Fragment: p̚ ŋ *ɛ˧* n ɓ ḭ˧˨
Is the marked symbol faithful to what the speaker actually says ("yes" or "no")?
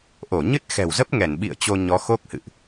no